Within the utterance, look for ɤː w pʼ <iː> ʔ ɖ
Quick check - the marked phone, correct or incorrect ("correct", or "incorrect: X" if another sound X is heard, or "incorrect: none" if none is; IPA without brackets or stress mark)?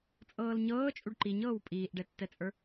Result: correct